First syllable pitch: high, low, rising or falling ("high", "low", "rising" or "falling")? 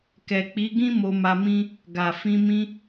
low